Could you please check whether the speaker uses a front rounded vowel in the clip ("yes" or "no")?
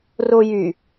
yes